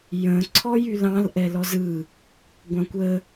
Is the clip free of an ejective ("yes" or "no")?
yes